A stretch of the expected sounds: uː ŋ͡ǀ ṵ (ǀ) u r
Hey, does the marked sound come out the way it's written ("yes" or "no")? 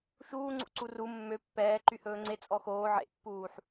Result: yes